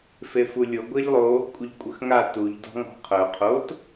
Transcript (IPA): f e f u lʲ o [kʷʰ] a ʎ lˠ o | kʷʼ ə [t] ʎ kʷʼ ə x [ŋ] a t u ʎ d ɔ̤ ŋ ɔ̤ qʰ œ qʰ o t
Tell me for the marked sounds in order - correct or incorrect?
incorrect: ɡʷ, incorrect: none, correct

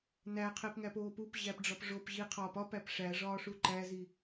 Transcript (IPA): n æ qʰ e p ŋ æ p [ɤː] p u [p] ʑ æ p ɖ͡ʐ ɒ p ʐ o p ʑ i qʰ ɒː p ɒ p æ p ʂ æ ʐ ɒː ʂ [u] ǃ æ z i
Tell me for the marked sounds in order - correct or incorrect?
incorrect: oː, correct, correct

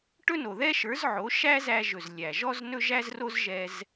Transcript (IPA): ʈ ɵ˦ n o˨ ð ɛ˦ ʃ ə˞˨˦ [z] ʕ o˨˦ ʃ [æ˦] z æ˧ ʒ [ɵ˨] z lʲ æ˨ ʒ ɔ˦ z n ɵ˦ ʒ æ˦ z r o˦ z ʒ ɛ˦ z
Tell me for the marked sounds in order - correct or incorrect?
correct, correct, correct

